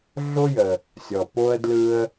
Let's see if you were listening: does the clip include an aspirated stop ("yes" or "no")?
no